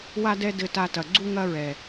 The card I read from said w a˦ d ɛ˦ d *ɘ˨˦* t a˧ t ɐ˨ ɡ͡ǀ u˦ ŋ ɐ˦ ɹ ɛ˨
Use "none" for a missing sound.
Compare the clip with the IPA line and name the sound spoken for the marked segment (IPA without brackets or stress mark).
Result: ɘ˧